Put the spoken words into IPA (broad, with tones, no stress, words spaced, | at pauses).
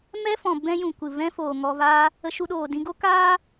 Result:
mɛ˦fɔ̃˨ bɛ̃˦jũ˨ kʷɨ˨vɛ̃˦ foː˨ŋɔ˧vaː˦ | ə˧ʃu˧ɗoː˨ dĩ˧ɡo˦kaː˦